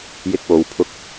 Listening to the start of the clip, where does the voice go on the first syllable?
high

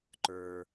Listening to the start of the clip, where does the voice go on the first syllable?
low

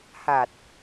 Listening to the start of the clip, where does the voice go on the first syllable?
low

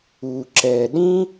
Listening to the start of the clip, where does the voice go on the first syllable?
low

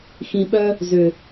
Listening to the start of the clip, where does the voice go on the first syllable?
low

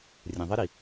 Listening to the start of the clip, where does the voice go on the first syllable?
low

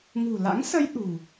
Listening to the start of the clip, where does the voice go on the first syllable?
low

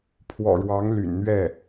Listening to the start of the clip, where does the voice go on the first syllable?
low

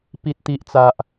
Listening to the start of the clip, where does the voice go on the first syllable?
high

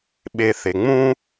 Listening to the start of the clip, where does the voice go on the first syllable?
low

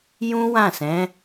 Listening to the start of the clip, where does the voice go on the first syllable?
high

